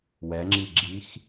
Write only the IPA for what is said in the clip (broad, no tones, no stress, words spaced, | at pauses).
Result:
wɛŋ͡ǁiɡ͡ǁix